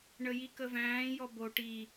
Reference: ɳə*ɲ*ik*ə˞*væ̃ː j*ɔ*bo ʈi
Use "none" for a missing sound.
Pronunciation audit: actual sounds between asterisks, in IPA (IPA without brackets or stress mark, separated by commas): j, ə, ɔ